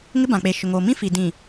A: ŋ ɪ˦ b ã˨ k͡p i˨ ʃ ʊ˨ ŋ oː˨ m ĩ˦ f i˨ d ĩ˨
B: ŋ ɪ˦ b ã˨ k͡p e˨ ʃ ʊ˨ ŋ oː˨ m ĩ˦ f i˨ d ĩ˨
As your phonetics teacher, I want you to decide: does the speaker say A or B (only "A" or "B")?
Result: B